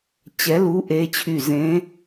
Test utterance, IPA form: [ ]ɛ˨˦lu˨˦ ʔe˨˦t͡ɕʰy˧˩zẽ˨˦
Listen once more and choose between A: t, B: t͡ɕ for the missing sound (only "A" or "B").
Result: B